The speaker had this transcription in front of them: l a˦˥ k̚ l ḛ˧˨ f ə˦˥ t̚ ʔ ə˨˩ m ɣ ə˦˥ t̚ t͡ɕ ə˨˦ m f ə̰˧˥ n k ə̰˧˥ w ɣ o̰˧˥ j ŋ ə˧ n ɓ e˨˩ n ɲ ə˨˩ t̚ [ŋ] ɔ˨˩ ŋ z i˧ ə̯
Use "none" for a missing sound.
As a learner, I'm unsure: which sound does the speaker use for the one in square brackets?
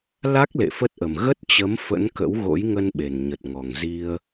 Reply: ŋ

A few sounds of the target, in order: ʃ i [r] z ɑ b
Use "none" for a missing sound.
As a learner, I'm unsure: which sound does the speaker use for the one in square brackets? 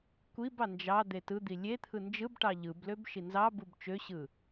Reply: n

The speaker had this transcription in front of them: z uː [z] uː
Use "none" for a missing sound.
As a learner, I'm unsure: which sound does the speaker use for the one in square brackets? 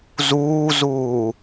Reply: z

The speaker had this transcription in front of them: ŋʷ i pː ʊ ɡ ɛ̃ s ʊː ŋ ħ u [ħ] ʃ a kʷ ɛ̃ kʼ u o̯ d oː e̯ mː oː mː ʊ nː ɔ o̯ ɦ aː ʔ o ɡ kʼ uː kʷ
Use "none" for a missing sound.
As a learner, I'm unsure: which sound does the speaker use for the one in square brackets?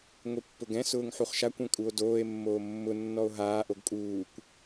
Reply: χ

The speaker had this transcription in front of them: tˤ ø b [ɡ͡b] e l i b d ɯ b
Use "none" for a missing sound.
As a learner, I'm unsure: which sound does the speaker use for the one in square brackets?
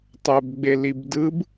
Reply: ɡ͡b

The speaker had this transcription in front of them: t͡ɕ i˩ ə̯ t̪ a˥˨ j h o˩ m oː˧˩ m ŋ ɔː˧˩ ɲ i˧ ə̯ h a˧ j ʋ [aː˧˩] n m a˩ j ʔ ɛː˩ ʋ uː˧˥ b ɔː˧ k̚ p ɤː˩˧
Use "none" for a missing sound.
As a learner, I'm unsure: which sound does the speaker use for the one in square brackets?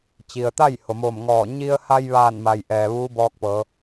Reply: aː˧˩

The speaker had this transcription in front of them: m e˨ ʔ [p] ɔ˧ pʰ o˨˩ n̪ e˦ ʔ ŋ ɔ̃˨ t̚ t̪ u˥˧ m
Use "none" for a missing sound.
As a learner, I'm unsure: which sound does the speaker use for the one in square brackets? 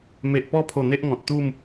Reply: p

